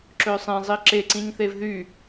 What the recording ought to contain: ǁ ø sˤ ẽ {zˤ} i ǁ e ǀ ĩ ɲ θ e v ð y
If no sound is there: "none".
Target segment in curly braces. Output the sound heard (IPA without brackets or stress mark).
zˤ